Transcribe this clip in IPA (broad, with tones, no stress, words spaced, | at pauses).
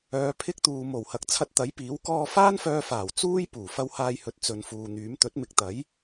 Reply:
œː˨˧pʰɪ˥k̚t̪uː˨ mo˨˩whɐ˨k̚ t͡sʰɐ˧t̚t̪ɐ˨˥jpiː˨˥w kɔː˧faː˥nfœː˧faː˨˩w t͡suː˥jpuː˨˩ fɐ˧whaː˧jhɵ˨t̚ t͡sɵ˨nfuː˨n̪yː˨˥m t̪ɵ˨˥t̚mɪ˨˥k̚t̪ɐ˨˥j